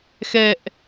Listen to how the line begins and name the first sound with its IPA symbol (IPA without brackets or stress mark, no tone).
x